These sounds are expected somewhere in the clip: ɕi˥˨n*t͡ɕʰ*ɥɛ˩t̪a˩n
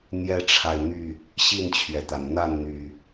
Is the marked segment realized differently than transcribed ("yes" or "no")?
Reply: no